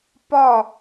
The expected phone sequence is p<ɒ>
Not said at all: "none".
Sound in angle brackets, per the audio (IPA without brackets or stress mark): ɒ